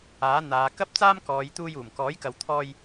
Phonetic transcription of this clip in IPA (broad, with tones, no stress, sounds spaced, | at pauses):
aː˨˥ n̪ aː˨˧ k ɐ˥ p̚ t͡s aː˥ m k ɔː˨˧ j t̪ uː˧ j uː˨˩ m k ɔː˨˥ j k ɐ˨ w t̪ʰ ɔː˧ j